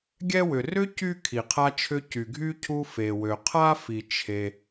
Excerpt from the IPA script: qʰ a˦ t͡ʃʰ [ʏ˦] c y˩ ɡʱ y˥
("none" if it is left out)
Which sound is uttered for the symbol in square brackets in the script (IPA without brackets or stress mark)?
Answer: ʏ˦